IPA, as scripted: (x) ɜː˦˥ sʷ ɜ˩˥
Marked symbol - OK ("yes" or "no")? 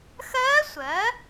yes